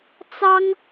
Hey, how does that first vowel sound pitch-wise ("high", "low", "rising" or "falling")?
high